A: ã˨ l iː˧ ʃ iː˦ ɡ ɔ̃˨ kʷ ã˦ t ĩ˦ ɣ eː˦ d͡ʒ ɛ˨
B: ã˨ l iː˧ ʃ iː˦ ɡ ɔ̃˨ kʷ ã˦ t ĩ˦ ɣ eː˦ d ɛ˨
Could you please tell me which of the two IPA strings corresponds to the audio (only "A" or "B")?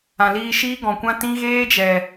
A